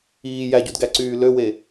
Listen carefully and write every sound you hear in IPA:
iː jæɟudɡæǀyː løwe

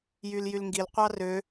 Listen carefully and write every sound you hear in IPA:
jyljylŋɡil qʷɑrø

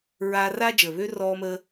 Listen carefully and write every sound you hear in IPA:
ɹaː˦raː˥d͡ʒəː˨ βøː˥rɔː˦məː˦

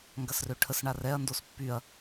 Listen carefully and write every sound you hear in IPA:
ŋɡɐsrøʈʰəs ɳarɛɐ̯ ndospːyɐ̯

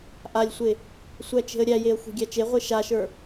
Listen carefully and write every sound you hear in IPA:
ʔalʲsʷe | sʷæt͡ʃe̤ə̯ɾʲæjeə̯ xʷe̤ɡʲæt͡ʃeʁʷe ʃaʃə˞

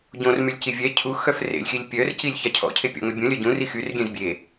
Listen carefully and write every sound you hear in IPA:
ɟõrmylʲci vʲɛ cʰu xœfrḛlʲxilʲ pʲœr cilʲçacʰɔ̰cʰe pʲɔ̰ŋœbʲũ lʲœɟũri xyrɡʲɛ̃z bʲe

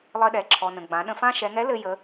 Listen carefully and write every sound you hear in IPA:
lˠɘ˧ɗɛ˩ǁʰɔ˩ nə̃˩ɡ͡bã˩˧ ɗə̃˧fã˥ ʃɛ˩˧ŋɛ˧˥ lɘ˧jə˩˧

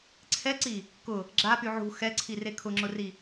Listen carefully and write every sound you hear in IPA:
ǀʰɛǀi | kʊ | ɡ͡ǁapy ʕṳ xɛǀʰire kʰʊŋ͡ǁʊri

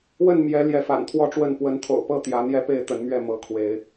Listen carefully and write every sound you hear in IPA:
wə˥˨nmjɛ˨˦ ljɛ˨˦fa̰˨˩nt̪ʰwɔ˥˨ʈ͡ʂwə˥˨n pwə˨˦nt̪ʰo̰˨˩ʊ̯pɤ˥˨ t̪jä˨˦ n̪jɛ˦pe˥˨ɪ̯t̪ə˨˦nmɥɛ˥˨ mɤ˨˦kʰwe˨˦ɪ̯

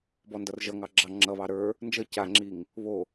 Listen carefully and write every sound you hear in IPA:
bɔndʌrʒʌŋɑ ɡ͡ǁɑ ŋ͡ǁʌβɑ ɾə˞ | nd͡ʒʌ caŋ͡ǁiŋ | βo

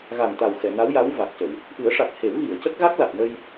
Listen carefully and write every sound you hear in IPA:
ɣa˨˩nt̪a˨˩w xɛ˨˩˨na˧˥wja˧˥w va˨˩k̚cə˨˩˨w | ʔɨ˨˩˦ə̯ʂa˨˩k̚ he˨˩˦wɣi˨˩˨ə̯cə˦˥k̚ ɣa˦˥k̚la˨˩t̚nə˧j

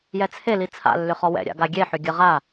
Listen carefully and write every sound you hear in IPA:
jɛt͡sʰe lit͡sʰa̰ lːʏχɔwɛ̰ ɾʲa̰ɡaɡʲe ħʏɡʲəʁa

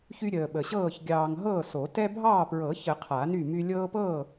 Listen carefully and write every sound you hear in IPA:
çy˦ɾʲəː˨ɓə˨ɕɤː˥˨ç ɡʲɑː˨ŋ ɦɤː˥˨so˨˩˦ tɛ˦ bʱɑː˥˨pɹɤ˨˩˦çə˨˩˦ qʰa˨˩˦ny˥˨my˦ lʲɤː˦pɤː˥˨

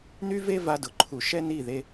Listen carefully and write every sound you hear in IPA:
ny˦ve˦ va˧dʊ˨ǃʰu˨ ʃɛ˦ni˦˨ðe˧

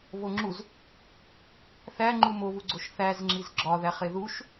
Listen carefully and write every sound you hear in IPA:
βoŋ͡ǁuz | θæŋ͡ǃu moβuɡ͡ǀoʃ θæzŋ͡ǁiz ɡ͡ǁɒðæχe ðuʃ

